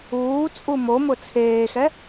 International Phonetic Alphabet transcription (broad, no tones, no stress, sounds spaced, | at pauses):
uː t͡sʼ u m o m ʊ t͡sʰ eː x ɛ